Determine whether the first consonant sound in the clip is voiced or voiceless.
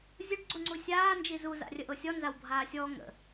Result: voiced